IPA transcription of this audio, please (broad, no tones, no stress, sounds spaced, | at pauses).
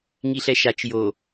ŋ i ɬ ɛ ʃ a t͡ʃ j o